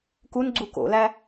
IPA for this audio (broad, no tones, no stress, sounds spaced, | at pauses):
k u n ɡ͡ǀ u k o̰ l æ